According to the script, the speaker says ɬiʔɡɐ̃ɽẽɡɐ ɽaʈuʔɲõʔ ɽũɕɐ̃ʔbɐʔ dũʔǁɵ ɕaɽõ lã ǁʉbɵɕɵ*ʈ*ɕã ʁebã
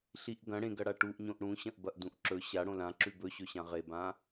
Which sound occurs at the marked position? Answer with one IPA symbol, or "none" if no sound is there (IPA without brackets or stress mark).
none